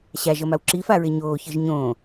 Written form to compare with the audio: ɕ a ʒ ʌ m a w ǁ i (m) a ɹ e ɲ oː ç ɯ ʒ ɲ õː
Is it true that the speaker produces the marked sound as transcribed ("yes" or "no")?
no